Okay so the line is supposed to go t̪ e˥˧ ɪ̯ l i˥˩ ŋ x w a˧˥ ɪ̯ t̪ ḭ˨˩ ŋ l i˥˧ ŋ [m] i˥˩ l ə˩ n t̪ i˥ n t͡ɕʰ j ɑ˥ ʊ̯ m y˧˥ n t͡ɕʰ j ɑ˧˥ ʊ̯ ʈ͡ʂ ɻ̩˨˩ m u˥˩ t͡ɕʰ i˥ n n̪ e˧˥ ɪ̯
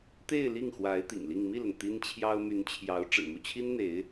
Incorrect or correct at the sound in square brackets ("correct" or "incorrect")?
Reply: correct